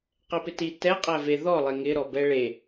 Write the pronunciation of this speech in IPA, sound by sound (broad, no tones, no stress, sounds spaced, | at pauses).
q ɛ p ɪ t i t ɛ qʼ æ v e ð ɔ lˠ e ŋ ɪ ɾ ɔ b ɛ ɭ e